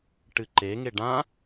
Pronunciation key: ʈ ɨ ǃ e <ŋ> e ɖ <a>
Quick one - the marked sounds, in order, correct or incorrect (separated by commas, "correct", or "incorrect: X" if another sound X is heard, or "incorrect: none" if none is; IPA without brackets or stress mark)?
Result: correct, incorrect: ã